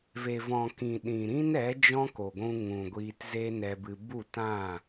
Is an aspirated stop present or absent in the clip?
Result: absent